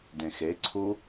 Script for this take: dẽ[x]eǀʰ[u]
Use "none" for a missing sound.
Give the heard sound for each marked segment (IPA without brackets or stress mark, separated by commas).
x, u